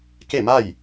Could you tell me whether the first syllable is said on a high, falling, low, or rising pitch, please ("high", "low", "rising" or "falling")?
falling